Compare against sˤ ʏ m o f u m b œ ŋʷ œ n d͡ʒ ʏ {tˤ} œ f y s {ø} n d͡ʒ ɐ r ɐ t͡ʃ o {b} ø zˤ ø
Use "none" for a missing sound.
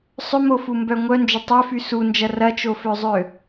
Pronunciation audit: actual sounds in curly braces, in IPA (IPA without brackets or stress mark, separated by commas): tˤ, u, f